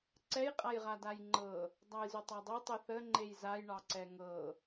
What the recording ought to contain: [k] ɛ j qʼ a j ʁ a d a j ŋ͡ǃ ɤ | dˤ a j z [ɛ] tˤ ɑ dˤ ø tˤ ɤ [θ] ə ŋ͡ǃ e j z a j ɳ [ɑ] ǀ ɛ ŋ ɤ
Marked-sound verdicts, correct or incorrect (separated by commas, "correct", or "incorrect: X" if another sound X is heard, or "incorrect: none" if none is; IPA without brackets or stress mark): incorrect: ǀ, incorrect: ø, correct, correct